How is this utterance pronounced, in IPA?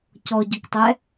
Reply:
cɔɟʊktˤɛ

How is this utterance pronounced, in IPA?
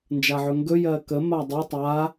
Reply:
nd͡ʒaʕɵŋɡɵ jɜkə madˤɯ tˤa

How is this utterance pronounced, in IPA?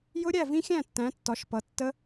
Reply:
jʊ˦˥ɾʲæ˥˨ vĩ˦˥xʲæ̃˥˨tːæ̃˨˦ tːɒ˨˦ʃpʌ˨˦tːə˦˥

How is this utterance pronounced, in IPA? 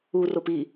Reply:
urop i

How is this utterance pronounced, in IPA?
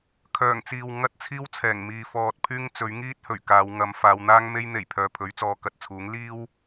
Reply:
kʰœː˨˩ŋt͡siː˨w ŋɐ˥t̚t͡sʰiː˥wt͡sʰɛː˨˩ŋ miː˨ fɔː˨t̚ pʰyː˥ŋt͡sɵ˨˥ɥ ŋiː˥t̚hɵ˨˩ɥ kaː˨˧wŋɐ˨˧m faː˨˧wn̪aː˥ŋme˥j n̪e˨˩jpʰœː˨ pʰɵ˨˥ɥt͡sɔː˨˧kɐ˨t̚t͡sʰuː˨˥ŋ liː˥w

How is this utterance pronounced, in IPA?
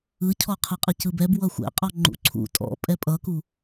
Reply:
ɯcʰɔqʰɯqʼɯ cɯbɛbwʌ xʷɛ̰qʼɒ ŋ͡ǃṵǀʰṵ tʼɔ̰ pʼɛpʼʌku

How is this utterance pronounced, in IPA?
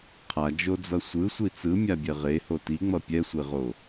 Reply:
qʰad͡ʒod͡zʌ sʷɯsʷi t͡sɯmʲabʲɛ ʁeho tiŋ͡mʌ pʲɛsʷeʁo

